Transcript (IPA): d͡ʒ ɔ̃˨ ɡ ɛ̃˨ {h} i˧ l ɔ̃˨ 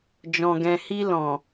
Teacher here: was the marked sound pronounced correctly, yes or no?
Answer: yes